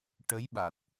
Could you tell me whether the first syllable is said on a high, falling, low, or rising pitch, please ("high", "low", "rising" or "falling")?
rising